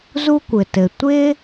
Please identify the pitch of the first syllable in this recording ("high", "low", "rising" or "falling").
high